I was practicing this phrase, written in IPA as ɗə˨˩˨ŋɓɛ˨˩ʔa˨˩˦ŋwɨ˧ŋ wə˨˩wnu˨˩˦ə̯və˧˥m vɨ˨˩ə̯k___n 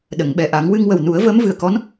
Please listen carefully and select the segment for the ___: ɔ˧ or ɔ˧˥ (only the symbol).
ɔ˧˥